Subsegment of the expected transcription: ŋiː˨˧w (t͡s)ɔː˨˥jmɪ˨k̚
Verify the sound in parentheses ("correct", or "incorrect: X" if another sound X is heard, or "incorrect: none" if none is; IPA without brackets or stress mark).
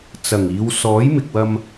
incorrect: s